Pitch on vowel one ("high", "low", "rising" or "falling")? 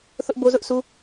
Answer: high